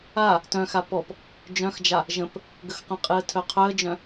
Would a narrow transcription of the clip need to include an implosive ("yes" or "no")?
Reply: no